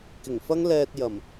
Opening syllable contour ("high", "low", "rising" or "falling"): low